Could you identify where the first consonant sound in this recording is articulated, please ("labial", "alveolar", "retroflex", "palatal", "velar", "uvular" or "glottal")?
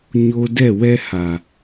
palatal